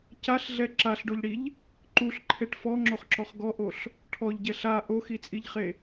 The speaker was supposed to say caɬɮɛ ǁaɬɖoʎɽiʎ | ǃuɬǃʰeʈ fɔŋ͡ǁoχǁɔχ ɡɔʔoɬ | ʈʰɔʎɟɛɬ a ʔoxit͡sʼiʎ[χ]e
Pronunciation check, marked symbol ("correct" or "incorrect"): correct